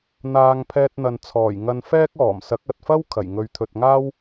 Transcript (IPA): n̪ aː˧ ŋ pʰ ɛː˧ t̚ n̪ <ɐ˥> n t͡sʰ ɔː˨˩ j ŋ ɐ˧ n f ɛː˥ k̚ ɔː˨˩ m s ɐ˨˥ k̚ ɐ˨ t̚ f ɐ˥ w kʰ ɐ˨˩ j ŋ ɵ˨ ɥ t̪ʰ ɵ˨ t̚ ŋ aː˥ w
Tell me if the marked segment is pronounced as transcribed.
no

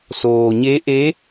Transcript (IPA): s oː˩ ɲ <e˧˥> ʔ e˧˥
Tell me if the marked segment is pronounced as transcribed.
yes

